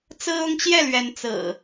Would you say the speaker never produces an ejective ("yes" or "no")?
yes